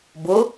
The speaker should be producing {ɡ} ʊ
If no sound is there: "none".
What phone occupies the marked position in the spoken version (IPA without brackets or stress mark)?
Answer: b